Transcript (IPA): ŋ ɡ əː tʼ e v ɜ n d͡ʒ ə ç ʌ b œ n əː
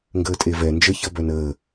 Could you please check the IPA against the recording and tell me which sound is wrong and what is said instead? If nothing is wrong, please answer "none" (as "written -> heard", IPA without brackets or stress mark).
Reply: ɜ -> ɛ